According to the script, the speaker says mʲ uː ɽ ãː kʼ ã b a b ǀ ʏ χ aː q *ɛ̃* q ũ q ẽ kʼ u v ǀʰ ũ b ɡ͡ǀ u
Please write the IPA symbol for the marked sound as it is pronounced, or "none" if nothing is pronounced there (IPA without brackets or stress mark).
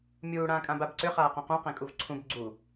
ɛ̃